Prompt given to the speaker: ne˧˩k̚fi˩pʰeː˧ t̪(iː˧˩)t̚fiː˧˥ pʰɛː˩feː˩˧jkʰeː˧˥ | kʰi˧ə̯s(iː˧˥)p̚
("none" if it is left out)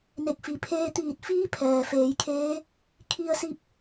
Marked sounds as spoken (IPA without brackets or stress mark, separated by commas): iː˧˩, i˧˥